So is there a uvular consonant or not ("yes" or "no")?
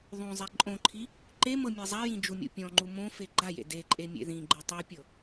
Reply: no